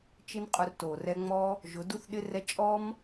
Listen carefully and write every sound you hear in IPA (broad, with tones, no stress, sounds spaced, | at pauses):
t͡ʃ ɪ˦ n qʼ ʊ˧ r t o˨ r ɛ˧ ŋ͡m ɔ˦ | ʒ ʊ˨˦ d u˦ θ ɗ ɪ˦ r ɛ˦ t͡ʃʼ ɔ˦ m